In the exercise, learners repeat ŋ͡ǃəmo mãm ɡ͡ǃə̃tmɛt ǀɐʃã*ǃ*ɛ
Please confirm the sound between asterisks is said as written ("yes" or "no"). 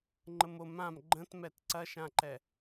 yes